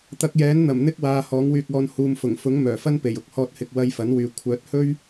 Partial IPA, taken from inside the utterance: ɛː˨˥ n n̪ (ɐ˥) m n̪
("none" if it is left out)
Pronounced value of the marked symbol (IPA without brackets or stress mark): ɐ˨˩